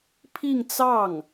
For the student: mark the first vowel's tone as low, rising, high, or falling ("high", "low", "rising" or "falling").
falling